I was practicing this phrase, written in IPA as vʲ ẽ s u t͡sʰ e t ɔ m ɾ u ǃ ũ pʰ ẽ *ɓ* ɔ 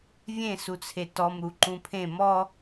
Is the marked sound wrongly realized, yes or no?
yes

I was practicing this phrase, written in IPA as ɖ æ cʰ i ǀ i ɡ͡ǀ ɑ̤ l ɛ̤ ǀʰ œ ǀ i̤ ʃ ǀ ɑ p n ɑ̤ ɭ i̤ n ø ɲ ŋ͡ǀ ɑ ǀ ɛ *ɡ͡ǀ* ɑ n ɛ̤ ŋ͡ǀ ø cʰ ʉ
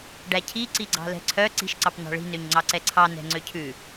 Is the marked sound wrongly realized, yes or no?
yes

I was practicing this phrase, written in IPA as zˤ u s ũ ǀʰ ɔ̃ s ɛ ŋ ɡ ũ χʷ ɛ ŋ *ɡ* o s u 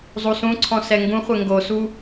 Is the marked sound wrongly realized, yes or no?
no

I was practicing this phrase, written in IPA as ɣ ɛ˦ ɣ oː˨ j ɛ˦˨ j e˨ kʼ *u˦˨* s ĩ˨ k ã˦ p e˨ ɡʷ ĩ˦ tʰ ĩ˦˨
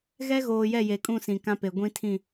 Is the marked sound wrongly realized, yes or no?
yes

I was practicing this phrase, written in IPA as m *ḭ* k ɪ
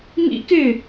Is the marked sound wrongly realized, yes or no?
no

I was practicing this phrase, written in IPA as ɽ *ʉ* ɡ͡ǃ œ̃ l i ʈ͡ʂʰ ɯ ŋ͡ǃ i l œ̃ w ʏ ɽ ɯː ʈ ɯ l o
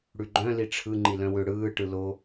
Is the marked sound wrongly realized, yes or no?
no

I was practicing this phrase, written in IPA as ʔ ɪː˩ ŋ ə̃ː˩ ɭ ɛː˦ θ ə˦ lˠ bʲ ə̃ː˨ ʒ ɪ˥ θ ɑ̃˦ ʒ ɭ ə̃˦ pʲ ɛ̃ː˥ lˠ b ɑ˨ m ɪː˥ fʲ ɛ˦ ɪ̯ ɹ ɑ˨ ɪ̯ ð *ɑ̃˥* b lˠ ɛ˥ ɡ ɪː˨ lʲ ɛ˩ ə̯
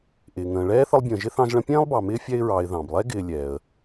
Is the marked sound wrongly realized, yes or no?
yes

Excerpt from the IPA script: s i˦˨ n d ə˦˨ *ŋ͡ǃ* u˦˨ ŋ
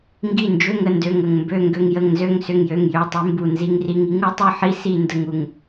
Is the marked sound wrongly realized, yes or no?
yes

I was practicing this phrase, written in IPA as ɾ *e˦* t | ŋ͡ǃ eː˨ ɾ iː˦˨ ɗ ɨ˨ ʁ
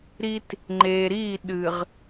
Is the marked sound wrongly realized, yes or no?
yes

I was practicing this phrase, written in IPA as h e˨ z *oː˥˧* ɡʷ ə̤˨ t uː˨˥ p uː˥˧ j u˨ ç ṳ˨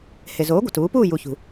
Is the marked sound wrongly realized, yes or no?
yes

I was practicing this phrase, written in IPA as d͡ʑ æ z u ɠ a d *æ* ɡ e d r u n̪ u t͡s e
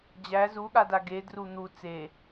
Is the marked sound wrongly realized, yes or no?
yes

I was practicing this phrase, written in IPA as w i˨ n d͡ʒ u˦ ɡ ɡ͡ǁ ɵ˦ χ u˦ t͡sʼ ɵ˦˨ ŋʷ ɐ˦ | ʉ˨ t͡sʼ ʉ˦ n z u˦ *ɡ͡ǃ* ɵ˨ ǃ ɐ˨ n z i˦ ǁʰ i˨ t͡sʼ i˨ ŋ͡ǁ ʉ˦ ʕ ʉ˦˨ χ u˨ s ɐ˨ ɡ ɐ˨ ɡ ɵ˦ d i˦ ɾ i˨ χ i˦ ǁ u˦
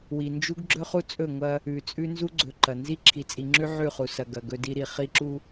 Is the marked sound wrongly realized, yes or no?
yes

